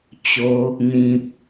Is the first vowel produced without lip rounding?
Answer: no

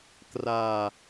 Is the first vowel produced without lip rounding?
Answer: yes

